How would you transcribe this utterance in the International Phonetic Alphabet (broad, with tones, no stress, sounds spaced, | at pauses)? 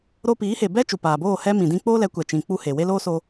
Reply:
ɾ o˧ p iː˨˦ h e˨ b ɛ˦ t͡ʃ u˨ p aː˨ b oː˦˨ h ɛ˦ m ĩ˨ d ĩ˦ k͡p oː˦ l ɛ˨˦ kʷ ɛ˨ t͡ʃ ĩ˨ k͡p u˧ h e˨ w e˦ l oː˦ s o˧